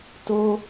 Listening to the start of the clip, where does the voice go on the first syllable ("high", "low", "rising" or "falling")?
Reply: high